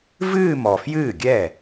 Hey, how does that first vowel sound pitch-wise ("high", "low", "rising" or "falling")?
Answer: falling